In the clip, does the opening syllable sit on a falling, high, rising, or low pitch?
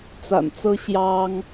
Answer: low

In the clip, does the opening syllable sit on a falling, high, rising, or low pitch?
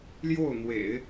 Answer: falling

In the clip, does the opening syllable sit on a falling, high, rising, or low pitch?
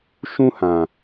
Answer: high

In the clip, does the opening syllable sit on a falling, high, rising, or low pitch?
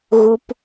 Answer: low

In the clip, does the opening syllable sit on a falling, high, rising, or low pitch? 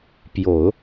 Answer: low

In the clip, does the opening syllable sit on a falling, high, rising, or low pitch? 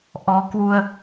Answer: rising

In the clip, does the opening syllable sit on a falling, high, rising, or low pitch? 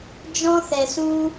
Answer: high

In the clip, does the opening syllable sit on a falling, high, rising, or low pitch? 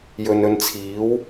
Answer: low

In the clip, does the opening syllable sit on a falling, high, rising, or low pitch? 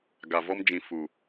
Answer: low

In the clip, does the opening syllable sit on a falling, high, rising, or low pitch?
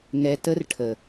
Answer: low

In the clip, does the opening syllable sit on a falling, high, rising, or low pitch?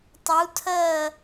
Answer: rising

